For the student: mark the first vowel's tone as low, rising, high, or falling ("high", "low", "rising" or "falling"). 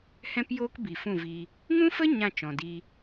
high